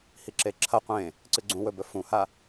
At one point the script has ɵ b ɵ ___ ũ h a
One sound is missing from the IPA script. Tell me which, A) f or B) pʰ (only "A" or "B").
A